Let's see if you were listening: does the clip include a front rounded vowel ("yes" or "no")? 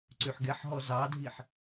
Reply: yes